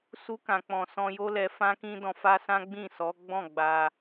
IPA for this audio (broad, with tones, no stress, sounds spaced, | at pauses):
s u˧ k ã˨ k͡p ɔ̃˨ s ɔ̃˧ j o˦ l ɛ˧ f ã˦ k ĩ˦ d ɔ̃˧ f a˦ s ã˦ ɡ͡b ĩ˦˨ s ɔ˨˦ ɡ͡b ɔ̃˦˨ ɡ͡b a˧